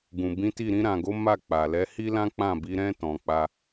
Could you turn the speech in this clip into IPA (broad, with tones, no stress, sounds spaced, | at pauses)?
ɡ ũ˨ b ĩ˨˦ t i˦˨ ɾ ĩ˧ ɾ ã˨ ɡ o˨˦ m a˦˨ k͡p a˨ l ɛ˨˦ h i˦ l ã˦ k͡p ã˦˨ b i˨˦ ɾ ɛ̃˦ t ɔ̃˧ k͡p a˦